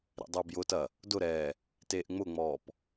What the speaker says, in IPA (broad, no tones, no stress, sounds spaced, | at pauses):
ɾ ḛ dˤ ʊː b j ʊ t ɐ | d ʊ ɾ ɛː | t eː ʔ ŋ͡m ʊ ŋ͡m ɔː p